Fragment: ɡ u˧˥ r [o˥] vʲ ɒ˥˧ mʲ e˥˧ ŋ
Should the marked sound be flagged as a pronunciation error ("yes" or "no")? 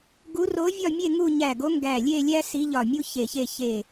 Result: yes